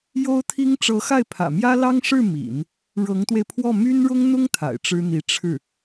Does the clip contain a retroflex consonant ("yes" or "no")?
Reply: yes